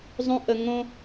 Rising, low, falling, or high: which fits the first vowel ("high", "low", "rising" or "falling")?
high